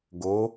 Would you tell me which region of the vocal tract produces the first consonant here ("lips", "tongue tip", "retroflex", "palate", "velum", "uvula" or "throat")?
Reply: velum